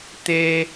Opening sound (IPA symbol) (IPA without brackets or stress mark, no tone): t̪